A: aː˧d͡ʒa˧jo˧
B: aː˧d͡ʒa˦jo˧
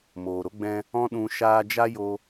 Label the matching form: B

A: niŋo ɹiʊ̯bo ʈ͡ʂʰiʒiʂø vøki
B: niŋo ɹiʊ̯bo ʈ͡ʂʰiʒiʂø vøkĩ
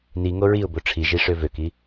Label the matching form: A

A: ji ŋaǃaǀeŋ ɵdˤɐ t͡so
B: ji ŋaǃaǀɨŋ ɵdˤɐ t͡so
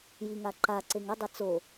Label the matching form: A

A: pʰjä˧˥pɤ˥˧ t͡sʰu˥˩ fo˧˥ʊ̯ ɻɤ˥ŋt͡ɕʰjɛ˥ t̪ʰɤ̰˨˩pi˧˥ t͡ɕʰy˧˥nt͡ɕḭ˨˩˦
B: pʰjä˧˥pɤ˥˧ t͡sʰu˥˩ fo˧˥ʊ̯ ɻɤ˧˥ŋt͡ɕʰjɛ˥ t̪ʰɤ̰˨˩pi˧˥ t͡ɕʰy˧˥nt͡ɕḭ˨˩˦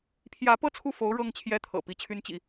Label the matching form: A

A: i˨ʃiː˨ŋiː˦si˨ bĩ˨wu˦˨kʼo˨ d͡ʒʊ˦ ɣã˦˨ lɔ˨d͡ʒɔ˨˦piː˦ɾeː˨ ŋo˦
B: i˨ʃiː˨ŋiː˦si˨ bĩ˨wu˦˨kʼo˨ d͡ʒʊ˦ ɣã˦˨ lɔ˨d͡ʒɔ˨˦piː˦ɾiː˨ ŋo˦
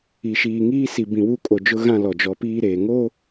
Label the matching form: A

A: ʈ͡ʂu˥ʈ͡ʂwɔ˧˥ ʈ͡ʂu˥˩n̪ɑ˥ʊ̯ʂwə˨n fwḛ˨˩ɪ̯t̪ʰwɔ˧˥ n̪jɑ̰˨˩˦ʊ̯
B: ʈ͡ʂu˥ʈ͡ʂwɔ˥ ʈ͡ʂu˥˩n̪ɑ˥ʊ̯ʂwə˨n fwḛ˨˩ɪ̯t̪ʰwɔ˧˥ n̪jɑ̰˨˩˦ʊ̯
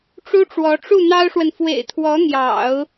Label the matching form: A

